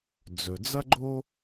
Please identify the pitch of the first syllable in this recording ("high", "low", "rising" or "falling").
low